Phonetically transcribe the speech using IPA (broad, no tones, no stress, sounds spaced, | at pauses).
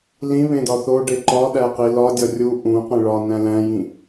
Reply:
l ĩ β ẽ d ɒ θ o ɖ e ǃ ɒ ɗ æ q i l ɒ dʲ ɒ rʲ u ʔ ũ q ẽ ɭ ɒ n æ̃ l æ̃ j ĩ